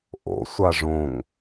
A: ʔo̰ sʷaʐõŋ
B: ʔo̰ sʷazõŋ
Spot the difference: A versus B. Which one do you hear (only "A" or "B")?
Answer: A